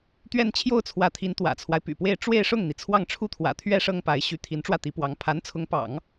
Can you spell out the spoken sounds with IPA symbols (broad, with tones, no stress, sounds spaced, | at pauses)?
t̪ ɥ ɛ˥˧ n t͡ɕʰ j o˥˩ ʊ̯ t͡sʰ w ä˧˥ t̪ʰ i˧˥ n t̪ w ä̰˨˩ t͡sʰ w a˦ ɪ̯ p y̰˨˩ p w e˥˧ ɪ̯ ʈ͡ʂ w e˥˧ ɪ̯ ʂ ʊ˥˩ ŋ n̪ i˩ t͡sʰ w ɑ˥˩ ŋ ʈ͡ʂʰ u˥ t̪ʰ w ä̰˨˩ t̪ʰ ɥ ɛ˥ ʂ ɤ˥ ŋ p a˧˥ ɪ̯ ɕ y˧˥ t̪ʰ i˧˥ n ʈ͡ʂ w ä˥˩ t̪ i˧˥ p w ɑ˧˥ ŋ pʰ a˧˥ n t͡sʰ ʊ˧˥ ŋ p ɑ̰˨˩˦ ŋ